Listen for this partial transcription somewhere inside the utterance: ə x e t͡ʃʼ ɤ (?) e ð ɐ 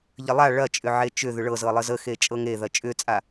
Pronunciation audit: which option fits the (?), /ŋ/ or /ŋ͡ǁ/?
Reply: ŋ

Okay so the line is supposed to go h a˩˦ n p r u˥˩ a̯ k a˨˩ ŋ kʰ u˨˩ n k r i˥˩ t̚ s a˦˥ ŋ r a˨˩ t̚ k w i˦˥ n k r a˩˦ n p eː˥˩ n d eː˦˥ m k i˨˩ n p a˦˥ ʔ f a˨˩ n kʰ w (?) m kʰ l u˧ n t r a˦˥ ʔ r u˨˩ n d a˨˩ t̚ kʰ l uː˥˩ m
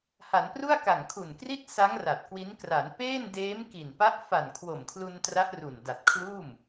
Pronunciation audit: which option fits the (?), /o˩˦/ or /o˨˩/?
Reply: o˨˩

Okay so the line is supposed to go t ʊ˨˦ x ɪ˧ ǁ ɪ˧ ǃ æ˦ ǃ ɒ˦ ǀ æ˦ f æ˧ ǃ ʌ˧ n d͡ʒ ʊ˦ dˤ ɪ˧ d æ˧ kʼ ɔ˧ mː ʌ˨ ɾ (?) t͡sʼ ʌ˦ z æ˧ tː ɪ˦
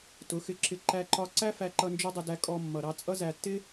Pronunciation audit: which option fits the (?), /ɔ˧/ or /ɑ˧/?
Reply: ɑ˧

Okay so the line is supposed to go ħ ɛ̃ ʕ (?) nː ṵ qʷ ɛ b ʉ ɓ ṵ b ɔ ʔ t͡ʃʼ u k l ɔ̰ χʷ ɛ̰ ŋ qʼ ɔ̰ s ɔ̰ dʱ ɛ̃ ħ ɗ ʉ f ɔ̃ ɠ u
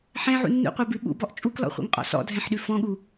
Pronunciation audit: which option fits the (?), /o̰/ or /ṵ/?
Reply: ṵ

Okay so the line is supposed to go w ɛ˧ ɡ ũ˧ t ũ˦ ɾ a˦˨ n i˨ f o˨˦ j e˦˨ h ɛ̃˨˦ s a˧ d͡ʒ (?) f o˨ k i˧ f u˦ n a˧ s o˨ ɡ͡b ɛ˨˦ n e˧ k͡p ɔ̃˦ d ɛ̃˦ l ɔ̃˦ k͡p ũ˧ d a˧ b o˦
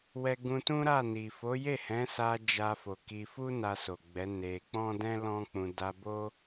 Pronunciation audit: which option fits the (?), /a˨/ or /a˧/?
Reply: a˧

